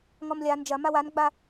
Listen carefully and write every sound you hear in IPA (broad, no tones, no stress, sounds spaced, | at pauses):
ŋ ɔ m lʲ a n d͡ʒ ɐ m a w a n ɡ͡b a